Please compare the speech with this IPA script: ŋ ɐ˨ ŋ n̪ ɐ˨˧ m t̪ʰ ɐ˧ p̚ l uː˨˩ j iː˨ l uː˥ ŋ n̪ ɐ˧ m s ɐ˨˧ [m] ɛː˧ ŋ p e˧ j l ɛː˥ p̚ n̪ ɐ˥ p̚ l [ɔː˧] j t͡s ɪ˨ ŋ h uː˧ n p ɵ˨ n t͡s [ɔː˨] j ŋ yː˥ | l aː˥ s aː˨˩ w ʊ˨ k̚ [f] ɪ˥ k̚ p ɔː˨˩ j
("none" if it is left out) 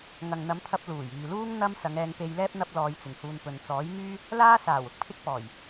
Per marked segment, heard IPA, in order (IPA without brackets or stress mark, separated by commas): ŋ, ɔː˧, ɔː˨˥, pʰ